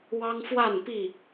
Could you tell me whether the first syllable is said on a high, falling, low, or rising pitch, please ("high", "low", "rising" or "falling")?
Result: high